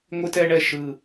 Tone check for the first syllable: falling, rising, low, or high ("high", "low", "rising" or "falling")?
high